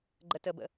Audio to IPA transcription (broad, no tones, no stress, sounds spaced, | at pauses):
ɡ͡ǃ ə t ə b ə̰